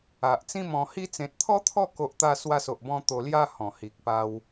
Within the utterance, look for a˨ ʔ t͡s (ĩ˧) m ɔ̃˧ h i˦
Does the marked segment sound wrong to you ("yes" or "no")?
yes